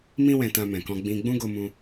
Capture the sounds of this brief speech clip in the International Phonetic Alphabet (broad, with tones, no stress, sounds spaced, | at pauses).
m ĩ˦ w ɛ̃˧ t ã˧ m ɛ̃˨ k ɔ̃˧ ɡ͡b ĩ˧ ɡ͡b ũ˦ ɡ o˧ m ũ˧